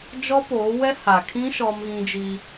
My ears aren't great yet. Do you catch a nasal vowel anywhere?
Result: yes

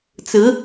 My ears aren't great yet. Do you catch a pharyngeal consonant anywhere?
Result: no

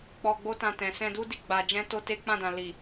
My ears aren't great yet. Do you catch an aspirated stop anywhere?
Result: no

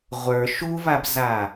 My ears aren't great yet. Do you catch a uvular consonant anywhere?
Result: yes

